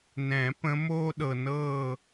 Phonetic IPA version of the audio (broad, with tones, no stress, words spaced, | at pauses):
nɛ̃˨˩˦pə̃˨˦ moː˥ɗɤ˩nɤː˥˩